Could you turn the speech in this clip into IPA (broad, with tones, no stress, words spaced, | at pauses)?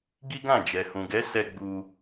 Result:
ɡi˦ɡã˦˨ d͡ʒɛ˨ hũ˨ɡɛ˨˦sɛ˧ ɡ͡bu˧